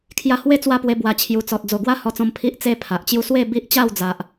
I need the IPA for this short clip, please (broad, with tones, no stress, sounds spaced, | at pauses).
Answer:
kʰ j a˧ h w e˥˧ t͡s w a˥˧ p w e˧ b w a˨˩ t͡ɕʰ j u˨˩ t͡s ɔ˨ t̚ d͡z o˨˩ ɡ w a˦ h ɔ˧ t͡s ɔ̃˧ m pʰ i˦ ʔ t͡s e˥˧ pʰ a˨ ʔ t͡ɕ j u˦ s w e˥˧ b i˦ ʔ t͡ɕ a˥˧ w d͡z a˨ ʔ